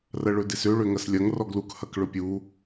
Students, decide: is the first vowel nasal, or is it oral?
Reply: oral